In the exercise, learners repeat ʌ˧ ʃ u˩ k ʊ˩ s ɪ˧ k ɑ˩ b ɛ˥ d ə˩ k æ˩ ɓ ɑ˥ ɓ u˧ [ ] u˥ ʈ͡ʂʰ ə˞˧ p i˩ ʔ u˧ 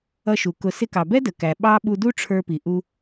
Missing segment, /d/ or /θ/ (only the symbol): d